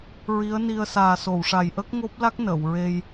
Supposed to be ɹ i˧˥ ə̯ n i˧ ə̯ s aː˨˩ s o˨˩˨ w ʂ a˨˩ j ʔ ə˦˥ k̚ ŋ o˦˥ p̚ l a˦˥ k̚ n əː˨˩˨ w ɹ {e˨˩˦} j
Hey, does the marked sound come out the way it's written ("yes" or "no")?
no